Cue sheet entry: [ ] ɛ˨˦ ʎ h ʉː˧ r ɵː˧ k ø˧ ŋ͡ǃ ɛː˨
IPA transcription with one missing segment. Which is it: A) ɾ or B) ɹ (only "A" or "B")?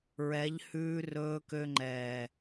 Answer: B